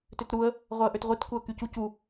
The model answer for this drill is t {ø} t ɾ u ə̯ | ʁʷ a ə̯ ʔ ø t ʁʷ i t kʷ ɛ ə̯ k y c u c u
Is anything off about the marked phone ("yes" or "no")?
no